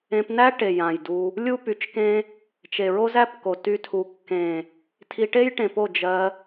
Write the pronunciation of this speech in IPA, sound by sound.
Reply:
ẽ˧ p n æ˦ ʈ e˨ j ã˨ j d u˧ | lʲ u˦ p y˨˦ t͡ʃ k ẽ˦ | t͡ʃ e˨ ɹ o˦ z æ˦ p k o˨ t y˧ tʰ u˧ kː ẽ˨ | tʰ i˧ ʈ e˦ j ʈ ẽ˨ p o˦˨ d͡ʒ ɜ˧

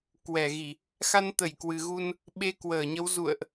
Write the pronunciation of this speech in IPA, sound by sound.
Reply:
k w ɛ˧˩ ɣ i˧˩˨ | x a˧ n t̪ ə˧˩ j k w ɨ˨˩ ɣ u˧ n | ɓ e˧ k w əː˧˩ ɲ ə˨˦ w z ṵ˧˨ ə̯ ʔ

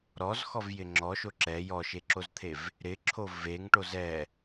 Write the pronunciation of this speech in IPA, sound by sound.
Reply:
ɾ ɔ z x ɔ v j ɪ ŋ͡ǁ ɔ ʃ o ǁ ɛ j ɔ ʃ e ǁ o z t̪ʰ e v | ɾ ɪ ǁʰ o v e ŋ ʈ o z ɛ

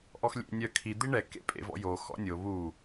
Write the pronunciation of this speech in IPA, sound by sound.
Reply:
ʔ ɔ x lʲ ḛ nʲ œ kʰ i d̪ i ɳ ɛ k ḛ pʼ ḛ v ɔ̰ j o x ɔ̰ nʲ o β u

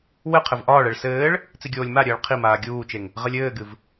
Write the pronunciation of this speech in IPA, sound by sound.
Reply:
w ɘ qʰ ɘ v ʔ ɒː ɭ ɛ ɭ s ɘː ɭ | t͡s i ɡʲ oː lʲ m a ɾʲ ɘː ɭ qʰ i m aː ɡʲ uː t͡ʃ e ŋ | ʁ ɘ lʲ ɘː ɡ ɨ v

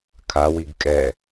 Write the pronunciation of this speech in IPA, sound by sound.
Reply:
kʰ a w i ɡ kʼ ɛ

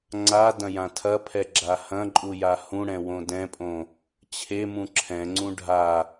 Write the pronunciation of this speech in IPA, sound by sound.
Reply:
ŋ͡ǀ a d ɐ̃ j ã tʰ ɐ pʰ ɛ ɡ͡ǁ a h ɐ̃ ǃʼ u j a h ũ ɽ ɛ̃ w õ d ɛ̃ pʼ õ | t͡ɕʰ e m ũ ǁʰ ɛ̃ ŋ͡ǀ ũ ɖʱ a

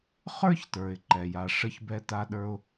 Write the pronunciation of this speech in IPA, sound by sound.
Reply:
χ ə˞˥ ç t ə˞˩ ɪ̯ ǃ ɛ˩ j a˩ ʂ ə˦ ç b ɛ˦ t a˦ ɗ ə˞˦ ʊ̯

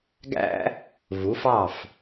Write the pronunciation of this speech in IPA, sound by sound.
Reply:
ɡ æ̰˥ | v u˩˥ f ɑ˥˩ f

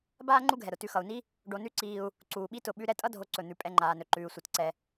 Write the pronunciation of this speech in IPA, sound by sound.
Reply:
b aː˥ ŋ͡ǃ u˦ ɡʱ ɛ˩ ɾ ʊ˩ t ʉ˨ x ʌ˩ u̯ n i˥ | ɖ o˨ n ʉ˦ ǀ iː˨ u̯ | ǀ uː˩ ɓ i˦ t ʊ˨ ɓ ʉ˦ ɾ ɛ˦ tʼ ʌ˦ dʱ o˨ ǀ ɵ˩ n̪ ʉ˩ pʼ ɛ˨ ŋ͡ǃ aː˩ n ɵ˩ ǃ ʉː˩ sʷ ʌ˩ t ǀ ɛ˩

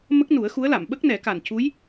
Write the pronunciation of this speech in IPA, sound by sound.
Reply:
m ə˦˥ k̚ n u˨˩˦ ə̯ x u˧˥ ə̯ l a˨˩˨ m ɓ ə˦˥ k̚ n ɛ˨˩˦ k a˨˩ n c u˧˥ j

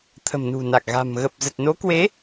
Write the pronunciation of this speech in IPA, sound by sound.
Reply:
t̪ʰ ə̤˨˩ m n ṳ˨˩ n a˨˩ k̚ ɣ a̤˨˩ m ɣ ə˨˩ p̚ z ə˨˩ t̚ n o˨˦ k w e˨˦

